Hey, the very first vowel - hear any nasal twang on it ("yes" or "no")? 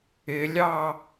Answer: no